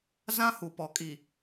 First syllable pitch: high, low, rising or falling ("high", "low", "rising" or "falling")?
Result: high